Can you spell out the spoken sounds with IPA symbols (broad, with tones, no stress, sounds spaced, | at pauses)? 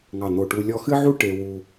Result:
ŋ ɑ˧˩ n̪ o˧˩ ʈ u˧ lʲ ɔ˧ x ɨ˥ ʕ u˥ ʈ e˧ w u˧